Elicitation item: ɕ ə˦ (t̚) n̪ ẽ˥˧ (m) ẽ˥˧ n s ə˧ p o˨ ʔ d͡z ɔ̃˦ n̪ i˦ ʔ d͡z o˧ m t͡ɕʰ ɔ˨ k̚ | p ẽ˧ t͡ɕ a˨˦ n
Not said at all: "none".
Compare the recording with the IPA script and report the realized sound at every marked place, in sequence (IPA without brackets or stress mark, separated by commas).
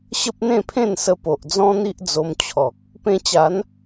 p̚, pʰ